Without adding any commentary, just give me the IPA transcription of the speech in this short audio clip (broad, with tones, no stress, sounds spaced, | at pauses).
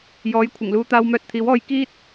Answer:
j ɔː˨˥ j kʷʰ ɪ˨˩ ŋ l uː˧ t̪ aː˧ w m œː˧ t̚ t̪ʰ iː˨˥ w ɔː˧ j k iː˥ t̚